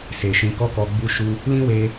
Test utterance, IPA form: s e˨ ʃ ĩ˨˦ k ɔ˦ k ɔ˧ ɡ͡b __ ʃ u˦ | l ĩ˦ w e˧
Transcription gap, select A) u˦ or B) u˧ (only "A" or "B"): A